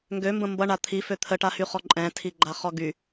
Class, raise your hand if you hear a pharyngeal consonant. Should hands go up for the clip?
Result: no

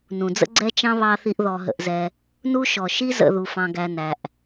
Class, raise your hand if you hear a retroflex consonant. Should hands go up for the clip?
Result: no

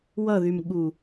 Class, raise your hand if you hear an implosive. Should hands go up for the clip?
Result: yes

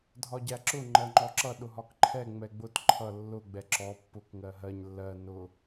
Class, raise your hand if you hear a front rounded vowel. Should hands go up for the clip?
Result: no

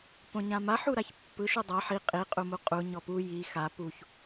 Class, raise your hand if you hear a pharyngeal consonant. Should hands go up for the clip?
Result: yes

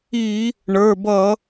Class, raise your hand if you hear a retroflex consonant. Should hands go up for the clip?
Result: yes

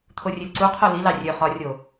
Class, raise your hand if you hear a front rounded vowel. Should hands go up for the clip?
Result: yes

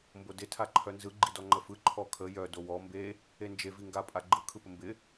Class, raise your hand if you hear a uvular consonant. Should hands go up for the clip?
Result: no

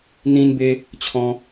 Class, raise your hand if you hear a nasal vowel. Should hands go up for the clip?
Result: yes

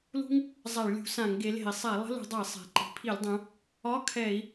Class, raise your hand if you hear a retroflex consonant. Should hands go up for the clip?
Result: yes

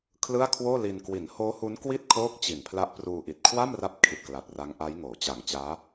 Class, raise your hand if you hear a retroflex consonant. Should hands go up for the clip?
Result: no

